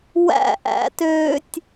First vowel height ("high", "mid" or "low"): low